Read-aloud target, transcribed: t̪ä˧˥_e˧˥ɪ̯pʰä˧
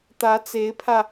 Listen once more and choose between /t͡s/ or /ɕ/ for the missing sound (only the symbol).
t͡s